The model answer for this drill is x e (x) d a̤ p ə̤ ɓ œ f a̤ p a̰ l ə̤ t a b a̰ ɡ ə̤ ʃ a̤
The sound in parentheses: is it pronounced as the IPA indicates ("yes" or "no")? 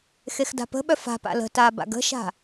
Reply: yes